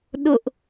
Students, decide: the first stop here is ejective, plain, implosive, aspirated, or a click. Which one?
implosive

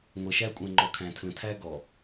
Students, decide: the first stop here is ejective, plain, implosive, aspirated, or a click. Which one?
ejective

